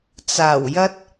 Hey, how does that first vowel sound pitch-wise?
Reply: low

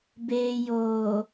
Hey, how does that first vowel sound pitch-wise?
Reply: low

